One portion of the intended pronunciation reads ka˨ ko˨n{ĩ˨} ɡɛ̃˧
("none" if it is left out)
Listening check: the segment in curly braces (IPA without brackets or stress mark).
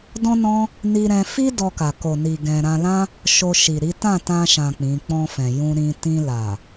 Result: i˨